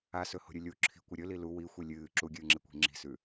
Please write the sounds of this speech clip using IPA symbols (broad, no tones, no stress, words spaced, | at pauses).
asɵho̤ɾʲʉ lʲu ǁʰi̤kʷɨ ɾʲɵli lu wixʷi lʲɨː ǁuɡʲɨːŋ͡ǁikʷi̤ ŋ͡ǁi̤sʉ